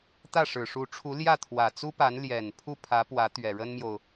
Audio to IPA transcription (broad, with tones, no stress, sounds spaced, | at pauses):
t̪ ä˥˩ ʂ ɻ̩˨˩ ʂ u˧˥ ʈ͡ʂʰ u˧˥ l j ä˥˩ t̪ʰ w ä˨˩ t͡s u˥ p a˧˥ n l j ɛ˨˩ n pʰ u˥˩ pʰ ä˧˥ p w ä˧˥ t̪ ɥ ɛ˨˩ ɻ ə˥ n m j o˨ ʊ̯